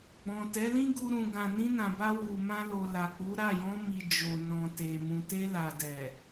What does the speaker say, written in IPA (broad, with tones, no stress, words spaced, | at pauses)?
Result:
ɡ͡bɔ̃˨tɛ˨˦lĩ˦ɡu˧ ɾũ˨ɡã˨nĩ˧ nã˨ba˧ wu˨mã˧lo˨ la˨k͡pu˨˦ɾa˦˨ jɔ̃˧mi˨ d͡ʒo˨nɔ̃˨te˨ mũ˨te˧ la˨dɛ˨